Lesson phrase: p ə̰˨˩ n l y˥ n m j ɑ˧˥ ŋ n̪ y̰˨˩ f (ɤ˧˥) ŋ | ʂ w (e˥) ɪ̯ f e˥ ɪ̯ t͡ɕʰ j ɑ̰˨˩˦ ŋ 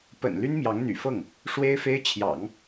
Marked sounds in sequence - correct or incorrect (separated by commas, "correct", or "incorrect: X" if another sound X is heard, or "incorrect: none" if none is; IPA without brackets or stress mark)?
incorrect: ɤ˥˩, correct